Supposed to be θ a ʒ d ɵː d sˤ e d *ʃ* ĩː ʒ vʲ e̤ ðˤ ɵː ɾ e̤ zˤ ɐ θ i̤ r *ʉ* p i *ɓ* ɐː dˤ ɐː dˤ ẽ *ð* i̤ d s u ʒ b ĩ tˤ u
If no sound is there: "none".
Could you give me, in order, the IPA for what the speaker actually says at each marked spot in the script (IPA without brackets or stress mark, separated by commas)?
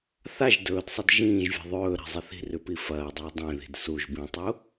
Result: ʒ, ʉ, f, ð